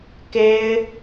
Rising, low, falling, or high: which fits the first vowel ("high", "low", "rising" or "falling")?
high